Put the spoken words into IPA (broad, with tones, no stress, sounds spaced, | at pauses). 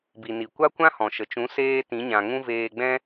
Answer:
b i˨ n i˨ kʷ a˦ kʷ ã˦ h ɔ̃˨ ʃ ə˨ t͡ʃ ũ˨˦ s eː˦ t ĩ˨˦ ɲ ã˨ ŋ ũ˦ v eː˧ ɡ͡b ɛ̃˦